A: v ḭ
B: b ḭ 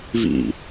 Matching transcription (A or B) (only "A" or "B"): A